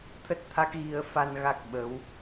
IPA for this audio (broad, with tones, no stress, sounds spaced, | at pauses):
t̪ʰ ə˦˥ t̚ t̪ʰ a˦˥ k̚ ɣ i˧ ə̯ f a˧ n ɣ a˦˥ k̚ ɓ ə˨˦ w